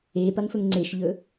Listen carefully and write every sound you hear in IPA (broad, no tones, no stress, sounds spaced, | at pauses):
e p ɐ ŋ f ɵ ŋ ŋ͡ǀ e ʃ ʎ ɵ